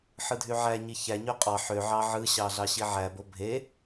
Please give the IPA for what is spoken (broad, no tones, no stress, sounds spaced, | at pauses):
ħ ɯ dʱ y ʕ æ ɲ i ç æ ɲ ø qʼ ɑ ħ ø ʕ ɑ ʕ ɯ ɕ ɑ ɮ ɑ ɕ i ʕ æ b o bʱ e